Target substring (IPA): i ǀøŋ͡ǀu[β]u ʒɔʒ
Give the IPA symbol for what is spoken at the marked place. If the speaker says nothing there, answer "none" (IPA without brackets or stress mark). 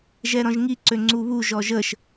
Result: β